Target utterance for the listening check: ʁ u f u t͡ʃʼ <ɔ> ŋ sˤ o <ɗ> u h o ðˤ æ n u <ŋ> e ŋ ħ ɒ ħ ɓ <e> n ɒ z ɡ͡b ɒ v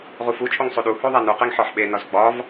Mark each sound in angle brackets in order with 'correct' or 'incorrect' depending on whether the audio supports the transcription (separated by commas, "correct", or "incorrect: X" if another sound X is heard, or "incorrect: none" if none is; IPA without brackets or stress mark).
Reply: incorrect: o, correct, incorrect: q, correct